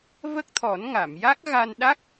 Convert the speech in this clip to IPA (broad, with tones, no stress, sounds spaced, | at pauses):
v ə˦˥ k̚ t̪ʰ ɔ˨˩˦ n ŋ a˨˩˨ m j a˦˥ k̚ ɣ a˧ n ɗ a˦˥ k̚